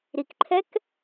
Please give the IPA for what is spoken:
ɾ i k ǃʰ ɛ k

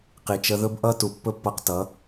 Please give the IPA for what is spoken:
q i˨ t͡ʃ ə˧ ð ɵ˦ b ʔ ʌ˦ t u˨ pː ɵ˦ pː ʌ˧ q t ʌ˨˦

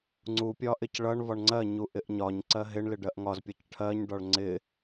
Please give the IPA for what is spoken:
ŋ͡ǀ u pʲ ɒ ʔ ɪ c ɭ ʌ ɳ v ɒ ɳ ŋ͡ǀ ɜ ɲ u ʔ ɪ ʔ ɲ ɒ ɲ ǀ ɜ ɦ ɪ ɳ l ɪ ɖ ɜ ʔ ŋ ɒ z pʲ ʌ c ʈʰ ɜ ɲ ɖ ɒ ɭ ŋ͡ǀ ɪ

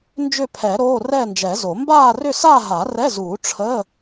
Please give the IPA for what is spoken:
n d͡ʒ ʏ˥˧ pʰ ɛ˨˩˦ ɾ oː˧˥˧ r ɛː˥˧ n d͡ʒ ɛ˨˩˦ z o˨˩˦ m b aː˥˧ r ʏ˥˧ s aː˥˧ ɦ a˨˩˦ r ɛ˧˥˧ z uː˨˩˦ ʈ͡ʂʰ əː˧˥˧

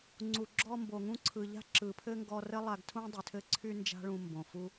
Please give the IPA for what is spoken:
ŋ͡ǀ u˩ ɡ͡ǁ ɔ˧ m b o˩ ŋ ũ˧ ǀʰ ɯ˩ ʎ a̤˥ ǁ ɯ˩ pʰ ɘ˥ ŋ ɡ ɔ˧ r ɘ˥ lˠ a˧ ɡ tʰ ũ˥ dˤ y˩ tʰ ɘ˥ ǀʰ y˥ n d͡ʒ a̤˥ ɭ ũ˧ m b õ˩ f u˥

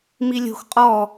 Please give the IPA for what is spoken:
m i lʲ o̤ x qʼ ɔ

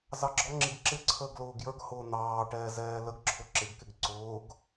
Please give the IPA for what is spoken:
z ɑ ɡ͡ǁ ɔ ŋ͡ǁ i ɡ ǁ ɪ ǀʰ əː ɡ l ʊː ɡ j ə˞ ɡ h ʊː n̪ ɑː ʈ ɛː z ɛː l ə ɡ ǁʰ ʊ ǁ ɪ ɡ k ɪ ɡ ǀ ʊː ɡ

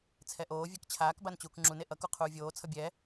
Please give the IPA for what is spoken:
t͡sʰ ɛ ʔ oː vʲ e k t͡ɕʰ aː k b a n t͡ɕ uː k ŋ͡ǁ u n e ʔ ʌ k u qʰ uː vʲ oː t͡sʰ ʌ bʲ ɛ

